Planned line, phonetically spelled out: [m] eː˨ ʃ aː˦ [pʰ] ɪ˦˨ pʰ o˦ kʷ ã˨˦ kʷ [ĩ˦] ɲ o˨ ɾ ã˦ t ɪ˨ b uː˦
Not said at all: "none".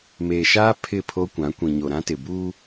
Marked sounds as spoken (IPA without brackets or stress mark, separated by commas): m, pʰ, ĩ˨